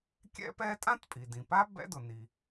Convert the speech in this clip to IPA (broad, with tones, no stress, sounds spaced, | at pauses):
kʲ ɛ̰˥ p ɛː˥ tʼ ã˥ t pʼ i˩ d ĩ˩ p a˥ b ɛ̰˥ d ʊ˩ n i˩